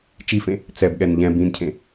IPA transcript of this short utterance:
t͡ʃ i f ẽ | t͡s ɛ b ɠ ɛ n ʎ ɛ̃ b ĩ n cʰ ẽ

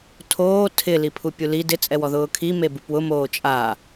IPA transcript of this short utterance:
tʰ oː tʰ ɪ l i pʰ u pʲ u l i d ɪ t͡sʼ ɛ w ɔ ð ʊː kʰ i m e b u p w ʊ m oː t͡ʃʼ a

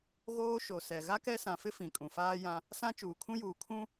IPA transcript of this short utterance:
ɣ oː˦ ʃ o˨ s ɛ˨ ɣ a˦ k ɛ˦ s ã˨ f ɪ˦ f ĩ˨ kʼ ũ˨ f aː˦ j ã˦ | s ã˦ t͡ʃ uː˨ kʰ ũ˦ j uː˨ kʰ ũ˦

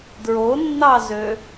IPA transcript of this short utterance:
d ɹ o nː ɑ z ø

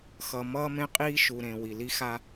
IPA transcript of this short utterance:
x ʌ˨ m ʌː˦ m ẽ˦ qʼ iː˦ ʃ u˨ ɾ ẽ˨ w i˨ l i˦ x a˦

